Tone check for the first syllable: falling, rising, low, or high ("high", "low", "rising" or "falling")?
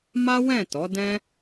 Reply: high